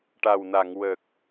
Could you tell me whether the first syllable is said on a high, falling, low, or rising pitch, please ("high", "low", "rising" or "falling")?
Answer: low